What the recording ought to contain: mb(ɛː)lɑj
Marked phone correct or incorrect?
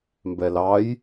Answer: incorrect